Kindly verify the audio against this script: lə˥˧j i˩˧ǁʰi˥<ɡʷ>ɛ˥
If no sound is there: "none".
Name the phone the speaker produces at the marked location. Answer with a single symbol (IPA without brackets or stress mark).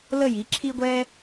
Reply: ɡʷ